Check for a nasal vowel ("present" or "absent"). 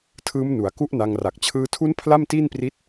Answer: absent